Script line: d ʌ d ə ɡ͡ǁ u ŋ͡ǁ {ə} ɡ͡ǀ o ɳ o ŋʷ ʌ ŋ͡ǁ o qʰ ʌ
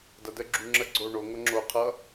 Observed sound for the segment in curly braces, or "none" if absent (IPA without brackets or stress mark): ə